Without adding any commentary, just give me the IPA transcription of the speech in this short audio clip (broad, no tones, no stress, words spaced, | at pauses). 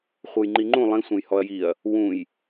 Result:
χʷɤjŋ͡ǃiŋ͡ǃũ lˠĩ sʷẽjhɔɐ̯jiɐ̯ | wũj